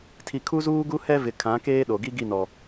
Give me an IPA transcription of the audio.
tʰ i˨ kʰ u˦ z uː˦ ɡ u˦ h ɛ˦ v ɪ˨ kʰ ã˨˦ k eː˦ ɗ o˨ ɡ i˦ ɡ i˦˨ n ɔ˨

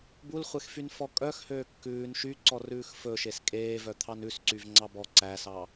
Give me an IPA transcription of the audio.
b u l χʷ e x f y n f ɔ kʼ œ x h øː kː ʉː n ʃ y ǀ ɔ r ʉː x f ɵ ʃ e s kʼ eː v œ t̪ʰ ɑ n ʉ s ǀ y v ŋ͡ǀ ɑ b ɔ ǀ æ s ɑ

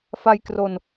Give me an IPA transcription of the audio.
f a˧ j k r o˧ n

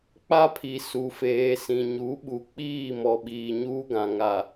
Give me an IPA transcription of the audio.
k͡p a˦ pʰ i˨ s u˨ f eː˨ s ĩ˨ ɲ u˨˦ ɓ u˨ k͡p iː˦˨ m ɔ˨ ɓ iː˨ ɲ uː˦ ɡ ã˨ ŋ a˨

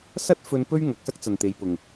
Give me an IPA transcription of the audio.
s ɐ˥ t̚ f ɵ˧ n p ɵ˥ ɥ ŋ ɐ˨ k̚ s ɐ˥ k̚ t͡s ɐ˨ n t̪ e˨˧ j p ʊ˨ ŋ

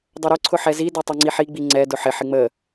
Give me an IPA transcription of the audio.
dˤ ə ɾ ʊ ǀʰ ʊ ħ ɛ z i d ɛ tˤ i ŋ͡ǀ i ħ i ɡ͡b i ŋ͡ǀ ɛ d ʊ ħ ɪ ħ ɪ ŋ͡m ə

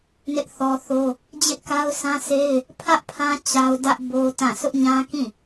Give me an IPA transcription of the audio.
n ɪ˦ ʔ θ ɔ˦ θ o˦ | d͡ʑ ɪ˦ ʔ k a˦ ʊ̯ sʰ ã˦ sʰ e˦ ɪ̯ | pʰ ä˦ ʔ pʰ ã˦ t͡ɕ a˦ ʊ̯ d ä˦ ʔ b o˦ t ã˦˨ sʰ ʊ˦ ʔ ɲ ã˦ k ĩ˦˨

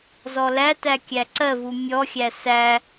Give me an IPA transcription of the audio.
z ɔ l æ t æ kʲ æ ǀ ɜ v u mʲ ɔ xʲ æ s æ

